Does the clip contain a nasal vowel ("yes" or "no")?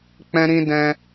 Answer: yes